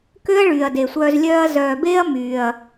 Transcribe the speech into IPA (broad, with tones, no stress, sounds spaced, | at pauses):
k ø˦ ɐ̯ ɭ yː˨ ɐ̯ d e˨ sʷ œː˧ z lʲ œː˧ ɐ̯ z œː˨ b eː˦ ɐ̯ m yː˨ ɐ̯